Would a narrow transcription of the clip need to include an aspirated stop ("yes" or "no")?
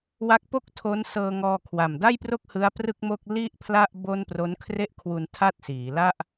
yes